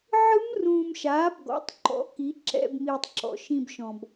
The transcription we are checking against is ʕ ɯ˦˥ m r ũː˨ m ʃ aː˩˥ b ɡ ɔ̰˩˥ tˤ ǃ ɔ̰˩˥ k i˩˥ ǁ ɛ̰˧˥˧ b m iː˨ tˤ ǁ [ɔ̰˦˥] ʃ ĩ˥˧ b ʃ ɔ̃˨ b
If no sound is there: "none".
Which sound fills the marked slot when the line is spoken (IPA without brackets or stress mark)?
ɔ̰˩˥